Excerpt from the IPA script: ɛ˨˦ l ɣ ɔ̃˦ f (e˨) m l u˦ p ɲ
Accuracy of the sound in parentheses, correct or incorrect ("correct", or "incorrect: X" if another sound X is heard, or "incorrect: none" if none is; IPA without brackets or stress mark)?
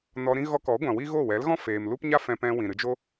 incorrect: eː˨